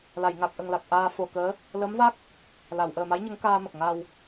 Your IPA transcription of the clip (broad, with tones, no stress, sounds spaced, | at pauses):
l a˨˩˨ j ŋ a˨˩ k̚ ʔ ə˨˩ ŋ l a˨˩ k̚ ʔ aː˧ f o˨˩ k əː˧˥ | l ə˧˥ m v a˦˥ k̚ | l a˨˩˨ w ʔ əː˨˩ m a˧˥ j ɲ ə˧˥ ŋ k aː˧ m ə˨˩ k̚ ŋ a˨˩ w